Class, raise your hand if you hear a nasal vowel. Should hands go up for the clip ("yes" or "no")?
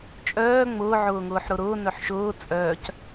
no